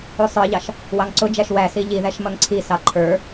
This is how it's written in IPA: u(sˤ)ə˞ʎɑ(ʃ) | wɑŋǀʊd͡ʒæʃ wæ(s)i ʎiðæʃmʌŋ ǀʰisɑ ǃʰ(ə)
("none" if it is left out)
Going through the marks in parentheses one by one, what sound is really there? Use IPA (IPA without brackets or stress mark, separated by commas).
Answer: sˤ, ʃ, s, ə˞